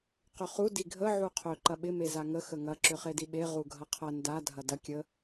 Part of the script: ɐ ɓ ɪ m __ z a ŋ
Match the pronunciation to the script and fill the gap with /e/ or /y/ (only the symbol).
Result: e